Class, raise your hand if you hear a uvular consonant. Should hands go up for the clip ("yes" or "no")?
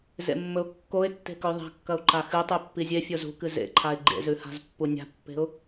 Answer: no